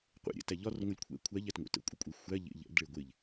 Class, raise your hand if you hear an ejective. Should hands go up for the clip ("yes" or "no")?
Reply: yes